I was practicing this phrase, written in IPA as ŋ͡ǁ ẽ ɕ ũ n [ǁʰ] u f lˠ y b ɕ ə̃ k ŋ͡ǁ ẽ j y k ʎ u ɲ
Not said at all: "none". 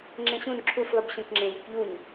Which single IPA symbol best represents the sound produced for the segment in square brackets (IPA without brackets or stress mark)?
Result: ǁʰ